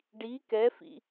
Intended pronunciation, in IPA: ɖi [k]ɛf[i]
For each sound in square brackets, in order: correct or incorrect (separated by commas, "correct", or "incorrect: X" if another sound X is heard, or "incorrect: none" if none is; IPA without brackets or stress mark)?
correct, incorrect: ḭ